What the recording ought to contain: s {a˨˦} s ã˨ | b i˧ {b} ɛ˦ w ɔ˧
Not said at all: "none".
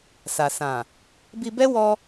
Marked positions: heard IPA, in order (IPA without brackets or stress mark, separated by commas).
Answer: a˨, b